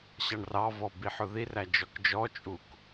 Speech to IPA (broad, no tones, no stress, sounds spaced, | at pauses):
ɕ ɑ ɳ r ɑ v ɔ b i ħ ʊ ð i r æ d͡ʒ ɔ k d͡ʒ ɔ t͡ʃʼ u k